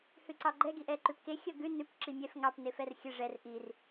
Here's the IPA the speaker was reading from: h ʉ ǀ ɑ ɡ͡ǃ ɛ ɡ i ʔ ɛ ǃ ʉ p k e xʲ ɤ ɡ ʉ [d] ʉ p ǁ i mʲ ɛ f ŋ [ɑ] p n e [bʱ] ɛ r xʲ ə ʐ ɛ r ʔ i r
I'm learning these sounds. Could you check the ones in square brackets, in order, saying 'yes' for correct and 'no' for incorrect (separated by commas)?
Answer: no, yes, no